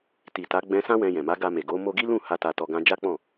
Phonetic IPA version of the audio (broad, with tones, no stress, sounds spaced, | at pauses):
t i˨ t a˨˦ ɡ͡b ɛ̃˧ s ã˦ w ɛ̃˧ j ɛ̃˨ m a˨˦ ɡ a˧ m e˨ ɡ o˨˦ m o˧ ɡ i˦ l ũ˦˨ h a˧ t a˧ t ɔ˧ ɡ ã˦ d͡ʒ a˦ k͡p ɔ̃˦˨